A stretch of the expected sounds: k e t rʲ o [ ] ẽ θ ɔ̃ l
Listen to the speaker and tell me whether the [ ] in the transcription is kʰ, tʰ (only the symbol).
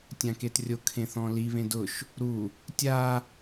kʰ